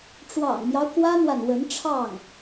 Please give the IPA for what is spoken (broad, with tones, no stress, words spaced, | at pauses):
ʈ͡ʂwɑ̰˨˩ŋmjɑ˦ʊ̯ kwä˥n̪wa˨nwə˧˥nʈ͡ʂʰɑ˥˩ŋ